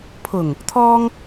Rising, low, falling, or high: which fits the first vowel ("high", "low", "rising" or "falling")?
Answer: low